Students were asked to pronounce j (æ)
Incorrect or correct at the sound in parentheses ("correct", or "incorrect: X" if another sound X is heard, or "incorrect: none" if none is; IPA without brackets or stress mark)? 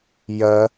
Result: incorrect: ɐ